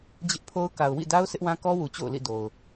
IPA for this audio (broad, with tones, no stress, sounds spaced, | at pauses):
d͡ʑ ɪ˦ ʔ pʰ o˦ ʊ̯ k a˨ ʊ̯ w ḭ˦˨ d a˦ ʊ̯ s ɪ˦ ʔ w ã˦ k ɔ˦ w u˨ t͡ɕ o̰˦˨ ʊ̯ l ḭ˦˨ d o˨ ʊ̯